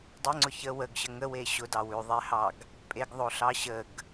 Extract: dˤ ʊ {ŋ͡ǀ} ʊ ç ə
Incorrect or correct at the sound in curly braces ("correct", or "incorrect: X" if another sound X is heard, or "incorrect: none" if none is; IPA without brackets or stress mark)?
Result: correct